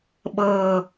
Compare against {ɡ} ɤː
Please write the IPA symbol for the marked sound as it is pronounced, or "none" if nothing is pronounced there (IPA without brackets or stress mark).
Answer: ɓ